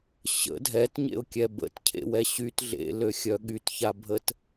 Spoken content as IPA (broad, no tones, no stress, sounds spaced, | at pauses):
ɕ ə̰ dʱ ɛ t ɲ ḛ ʊ̯ kʲ ɛ b ə̰ t cʰ ḛ w ɛ ɕ y t ɮ ḛ l ø xʲ œ ɠ y t ç a bʱ ə t